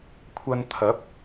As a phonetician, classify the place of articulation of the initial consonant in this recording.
velar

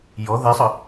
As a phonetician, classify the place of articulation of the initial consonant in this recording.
palatal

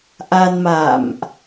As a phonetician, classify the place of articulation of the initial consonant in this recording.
glottal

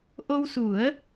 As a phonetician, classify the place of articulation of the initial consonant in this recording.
glottal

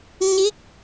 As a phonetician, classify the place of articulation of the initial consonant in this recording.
palatal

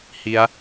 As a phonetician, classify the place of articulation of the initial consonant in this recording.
glottal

